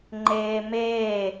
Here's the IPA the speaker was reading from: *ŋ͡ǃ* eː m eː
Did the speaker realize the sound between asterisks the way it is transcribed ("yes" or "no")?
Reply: yes